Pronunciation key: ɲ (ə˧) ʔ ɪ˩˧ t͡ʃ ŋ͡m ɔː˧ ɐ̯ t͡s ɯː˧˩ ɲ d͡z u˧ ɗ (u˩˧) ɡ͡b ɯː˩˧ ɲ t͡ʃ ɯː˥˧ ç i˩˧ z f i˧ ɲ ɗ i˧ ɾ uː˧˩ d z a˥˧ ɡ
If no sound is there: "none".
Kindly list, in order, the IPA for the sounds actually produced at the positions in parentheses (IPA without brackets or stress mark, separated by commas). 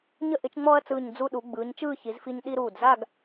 ə˧, u˩˧